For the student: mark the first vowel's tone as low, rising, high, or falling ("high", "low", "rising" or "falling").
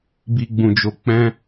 high